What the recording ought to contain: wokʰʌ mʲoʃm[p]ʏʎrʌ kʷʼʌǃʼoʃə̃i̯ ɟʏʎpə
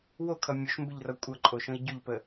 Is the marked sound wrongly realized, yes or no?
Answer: yes